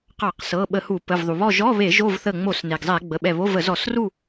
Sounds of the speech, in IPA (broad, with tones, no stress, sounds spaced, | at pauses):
q ɑ˧˩˧ q s ɤ˩˧˩ ɓ ə˧˩˧ h u˧˩˧ p ə˩˧˩ v ðˤ u˩ β ɔ˥˨ ʒ ɔ˧˥˧ β e˧˩˧ ʒ o˥˨ v θ ə˧˩ ŋ͡m o˧˩˧ s n e˩ ɡ zˤ ɛ˧˩˧ ɡ͡b ə˩˧˩ ɓ ɛ˧˩ β o˧˥˧ v ə˧˩˧ z ɔ˧˩˧ s r u˥˨